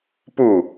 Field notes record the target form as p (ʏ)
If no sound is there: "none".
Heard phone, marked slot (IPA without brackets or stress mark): u